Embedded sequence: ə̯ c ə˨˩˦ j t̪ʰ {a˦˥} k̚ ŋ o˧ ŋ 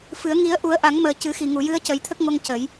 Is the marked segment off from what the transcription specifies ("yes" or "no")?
yes